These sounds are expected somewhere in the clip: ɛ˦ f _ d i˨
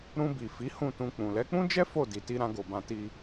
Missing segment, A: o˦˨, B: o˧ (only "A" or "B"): A